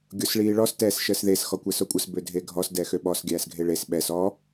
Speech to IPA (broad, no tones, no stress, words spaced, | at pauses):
ɡʲosɭiːɭɔs tɛːsʃəːsðes xɔkʷɛsokʷʼəs bødʱeɡʱɔs dɛxøɓɔs ɡʲæːsɡʱeɭes ɓɛs ɔ